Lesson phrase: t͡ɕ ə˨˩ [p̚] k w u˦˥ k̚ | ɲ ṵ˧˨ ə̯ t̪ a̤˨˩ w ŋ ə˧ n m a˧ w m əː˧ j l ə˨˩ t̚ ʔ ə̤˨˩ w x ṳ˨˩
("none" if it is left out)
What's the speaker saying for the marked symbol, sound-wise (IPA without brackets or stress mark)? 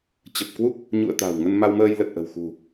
p̚